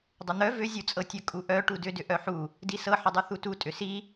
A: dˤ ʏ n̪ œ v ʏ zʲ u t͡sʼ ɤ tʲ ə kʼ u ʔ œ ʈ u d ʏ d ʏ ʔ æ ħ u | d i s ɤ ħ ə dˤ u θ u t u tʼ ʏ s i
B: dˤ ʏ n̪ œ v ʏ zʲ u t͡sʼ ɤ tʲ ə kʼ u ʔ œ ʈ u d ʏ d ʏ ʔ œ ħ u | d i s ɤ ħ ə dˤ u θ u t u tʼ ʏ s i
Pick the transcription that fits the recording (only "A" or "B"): B